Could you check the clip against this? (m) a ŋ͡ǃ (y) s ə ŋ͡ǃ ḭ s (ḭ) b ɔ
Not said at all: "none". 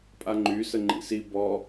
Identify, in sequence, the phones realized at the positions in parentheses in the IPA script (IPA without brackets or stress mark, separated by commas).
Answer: pʼ, y, i